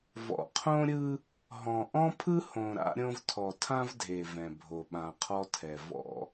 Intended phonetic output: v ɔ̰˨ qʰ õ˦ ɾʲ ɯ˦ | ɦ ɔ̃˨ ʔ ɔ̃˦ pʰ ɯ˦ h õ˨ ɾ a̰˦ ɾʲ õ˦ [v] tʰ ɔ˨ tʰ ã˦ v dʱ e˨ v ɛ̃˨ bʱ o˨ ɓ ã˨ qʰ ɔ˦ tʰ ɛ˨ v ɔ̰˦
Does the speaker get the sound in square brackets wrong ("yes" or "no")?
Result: no